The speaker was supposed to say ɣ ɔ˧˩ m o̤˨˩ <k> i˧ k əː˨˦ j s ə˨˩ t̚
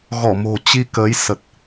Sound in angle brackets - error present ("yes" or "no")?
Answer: yes